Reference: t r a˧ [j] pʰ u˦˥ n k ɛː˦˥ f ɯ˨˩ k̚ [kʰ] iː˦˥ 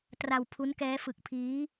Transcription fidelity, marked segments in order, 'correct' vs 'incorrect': incorrect: w, incorrect: pʰ

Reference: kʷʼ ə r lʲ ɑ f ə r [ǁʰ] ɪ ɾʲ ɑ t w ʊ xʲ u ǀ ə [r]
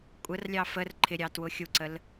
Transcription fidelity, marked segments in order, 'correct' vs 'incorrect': incorrect: ǃʰ, incorrect: l

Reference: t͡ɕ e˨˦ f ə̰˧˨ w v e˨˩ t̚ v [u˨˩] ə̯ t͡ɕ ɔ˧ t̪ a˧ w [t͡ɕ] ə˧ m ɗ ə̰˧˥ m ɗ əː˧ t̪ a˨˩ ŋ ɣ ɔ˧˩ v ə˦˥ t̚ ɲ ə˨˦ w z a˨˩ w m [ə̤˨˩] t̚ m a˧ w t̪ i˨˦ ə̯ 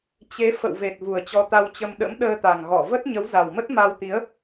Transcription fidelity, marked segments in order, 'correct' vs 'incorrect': correct, correct, incorrect: ə˦˥

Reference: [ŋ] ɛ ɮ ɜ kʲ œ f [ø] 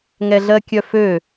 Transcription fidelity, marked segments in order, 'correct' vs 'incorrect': correct, correct

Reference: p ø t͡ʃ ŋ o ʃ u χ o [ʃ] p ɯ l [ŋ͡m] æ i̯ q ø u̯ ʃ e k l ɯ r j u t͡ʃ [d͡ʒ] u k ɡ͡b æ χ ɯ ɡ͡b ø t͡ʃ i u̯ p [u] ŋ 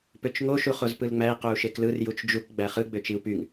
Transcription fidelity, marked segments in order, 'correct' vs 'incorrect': incorrect: z, correct, correct, incorrect: y

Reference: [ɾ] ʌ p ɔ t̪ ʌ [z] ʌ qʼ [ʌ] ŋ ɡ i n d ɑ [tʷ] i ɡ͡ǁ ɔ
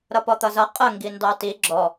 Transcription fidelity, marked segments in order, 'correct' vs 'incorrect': correct, correct, incorrect: ə, incorrect: t

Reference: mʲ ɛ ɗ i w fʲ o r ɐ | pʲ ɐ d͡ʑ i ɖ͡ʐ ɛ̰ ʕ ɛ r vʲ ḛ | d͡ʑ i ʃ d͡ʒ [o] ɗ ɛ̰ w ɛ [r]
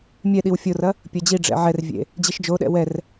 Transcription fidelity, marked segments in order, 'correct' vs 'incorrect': correct, correct

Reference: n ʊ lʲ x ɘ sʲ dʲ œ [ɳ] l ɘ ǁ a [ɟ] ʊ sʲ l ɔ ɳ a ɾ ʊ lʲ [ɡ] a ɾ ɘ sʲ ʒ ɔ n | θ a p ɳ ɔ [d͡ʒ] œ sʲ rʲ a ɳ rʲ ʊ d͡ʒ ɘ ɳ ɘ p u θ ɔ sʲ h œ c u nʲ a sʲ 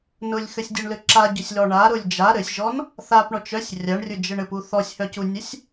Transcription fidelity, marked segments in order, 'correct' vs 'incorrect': correct, correct, incorrect: d͡ʒ, incorrect: t͡ʃ

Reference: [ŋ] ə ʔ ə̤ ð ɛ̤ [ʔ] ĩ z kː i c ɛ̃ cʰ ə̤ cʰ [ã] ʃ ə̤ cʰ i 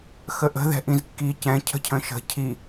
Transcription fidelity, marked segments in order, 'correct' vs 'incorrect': incorrect: x, correct, incorrect: ə̃

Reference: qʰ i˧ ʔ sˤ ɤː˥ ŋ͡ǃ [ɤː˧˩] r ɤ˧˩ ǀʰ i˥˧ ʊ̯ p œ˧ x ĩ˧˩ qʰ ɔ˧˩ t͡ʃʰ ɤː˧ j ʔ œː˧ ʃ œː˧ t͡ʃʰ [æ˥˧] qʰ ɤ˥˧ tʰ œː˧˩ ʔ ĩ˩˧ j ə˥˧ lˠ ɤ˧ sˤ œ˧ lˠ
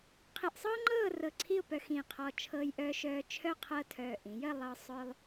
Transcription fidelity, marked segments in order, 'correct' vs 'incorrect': incorrect: ɤː˥˧, incorrect: œ˥˧

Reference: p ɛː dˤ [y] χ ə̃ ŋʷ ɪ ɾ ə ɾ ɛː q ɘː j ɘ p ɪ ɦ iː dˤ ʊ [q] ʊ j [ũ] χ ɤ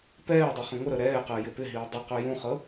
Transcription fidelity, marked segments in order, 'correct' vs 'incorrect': incorrect: i, correct, correct

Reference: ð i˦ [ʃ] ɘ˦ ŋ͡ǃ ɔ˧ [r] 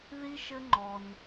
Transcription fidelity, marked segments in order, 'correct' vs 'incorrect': correct, incorrect: n

